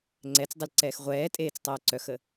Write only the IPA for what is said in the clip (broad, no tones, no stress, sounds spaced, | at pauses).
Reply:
ŋ͡ǀ ɛ t͡s dˤ ʏ l ǀ ɛː x ʁʷ ɛː tʼ eː t͡s tˤ œː ǀ œ x ə